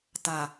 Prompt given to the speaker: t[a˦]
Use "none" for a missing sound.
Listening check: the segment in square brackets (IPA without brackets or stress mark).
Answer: a˨